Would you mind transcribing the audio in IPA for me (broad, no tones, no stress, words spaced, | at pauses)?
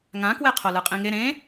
ŋãkwe qʰolɯqʼĩŋe ɾẽ